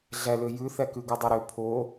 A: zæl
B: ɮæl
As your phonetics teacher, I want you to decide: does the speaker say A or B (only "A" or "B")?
B